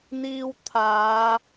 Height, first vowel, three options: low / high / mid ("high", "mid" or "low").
high